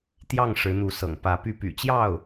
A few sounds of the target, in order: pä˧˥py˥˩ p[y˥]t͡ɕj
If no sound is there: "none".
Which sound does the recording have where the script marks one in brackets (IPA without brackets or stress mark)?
y̰˨˩